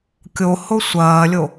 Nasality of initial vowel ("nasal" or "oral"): oral